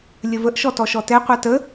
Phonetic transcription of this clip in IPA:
lʲ ə v ə ʔ ʃ ɔ t ɔ ʃ ɔ t ɛ qʷ a t ə

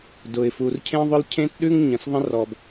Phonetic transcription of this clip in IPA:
d ʊ˩ ɪ̯ f u˩ r cʰ ẽ˥ ðˤ ʊ˥ l cʰ ẽ˥ t ɗ ʉ˥ ŋ ɲ ə̃˩ s ðˤ ə̃˥ r ɔ˩ b

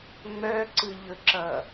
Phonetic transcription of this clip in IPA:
ŋ͡m œ ǀ ɯ ʎ ɵ ǁ ʌ

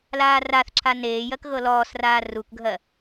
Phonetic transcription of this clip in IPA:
l aː r a θ ǁʰ a n eː j ɜ k ɣ ɤ l ɔː s r aː r u k ɡʱ ɜ

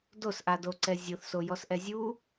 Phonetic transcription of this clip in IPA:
d o s ʔ a d o ǀ ɛ zʲ o θ s o j ɔ s ʔ ɛ zʲ u

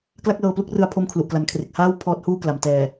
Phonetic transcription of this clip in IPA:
k l a˥˩ k̚ l ɤː˧ p l u˥˩ k̚ r ɯ˧ a̯ pʰ o˥˩ m kʰ l u˨˩ ʔ k l a˩˦ n kʰ r e˨˩ k̚ h aː˥˩ w pʰ ɔː˦˥ t̚ h uː˥˩ k l a˩˦ m t ɛː˨˩

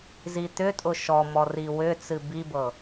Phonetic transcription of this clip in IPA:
z i t̪ ʏ tʼ ʊ ʃ ɔ m ɔ r i w ʏ t͡s ɨ b i b ɤ

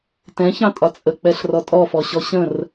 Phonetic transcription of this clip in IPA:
t ɛ̃ ç ɑ̃ tʼ ɒ t͡sʼ ə k͡p ɛ ɬ r ɔ tʼ ɔ f ɔ ɕ ɔ ɕ ə̃ r

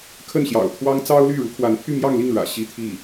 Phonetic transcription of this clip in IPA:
kʰ ə˥˩ n ɕ j ɑ̰˨˩ ʊ̯ t̪ʰ w ɑ˥ ŋ t͡s ɑ˥ ʊ̯ l y˥˩ ɻ u˧˥ kʰ w a˧˥ n pʰ y˥˧ m j ɑ˥˧ ŋ l i˥˩ ŋ ɻ ä̰˨˩ ɕ i˥˧ t̪ʰ i˥˩

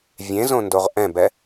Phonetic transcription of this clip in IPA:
vʲ ẽ z õ n d o ʁ ʔ ɛ̃ b ɛ

